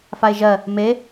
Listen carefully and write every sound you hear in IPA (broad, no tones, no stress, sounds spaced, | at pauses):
f a e̯ ʒ ɜ | m e